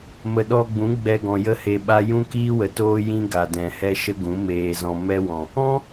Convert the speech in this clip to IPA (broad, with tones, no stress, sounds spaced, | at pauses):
m ə˨ ɗ ɔ˧ ɡ͡b ũ˨˦ ɡ͡b ɛ˧ ɡ ɔ̃˨ j ə˦ h e˧ ɓ a˦ j ũ˦ k iː˦ w ə˨ t oː˦ j ĩ˦ ɡ a˨ d ɛ̃˨ h ɛ˦ ʃ ə˦ ɡ ũ˨˦ m eː˧ z ɔ̃˧ m ɛ˦ w ɔ̃˨ | ɔ̃˦